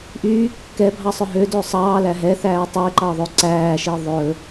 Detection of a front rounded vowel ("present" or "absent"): present